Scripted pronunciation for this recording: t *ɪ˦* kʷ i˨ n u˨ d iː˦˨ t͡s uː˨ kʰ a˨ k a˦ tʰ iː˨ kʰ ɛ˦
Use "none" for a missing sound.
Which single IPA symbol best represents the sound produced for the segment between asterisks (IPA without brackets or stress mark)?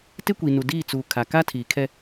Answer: ɪ˦